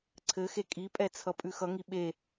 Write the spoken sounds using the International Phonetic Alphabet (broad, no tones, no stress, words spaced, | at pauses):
ǀʰɘxe kʼipʼɛt͡sʰʌ pʼʉxʌŋi ɓe